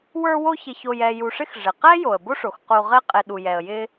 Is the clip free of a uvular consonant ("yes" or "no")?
no